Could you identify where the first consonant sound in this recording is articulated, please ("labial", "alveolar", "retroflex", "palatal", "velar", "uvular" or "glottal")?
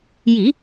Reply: palatal